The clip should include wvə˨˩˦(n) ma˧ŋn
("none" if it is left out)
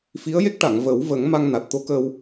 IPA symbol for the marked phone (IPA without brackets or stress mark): ŋ